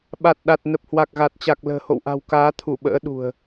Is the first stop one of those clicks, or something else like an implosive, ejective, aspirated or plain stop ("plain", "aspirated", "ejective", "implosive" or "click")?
implosive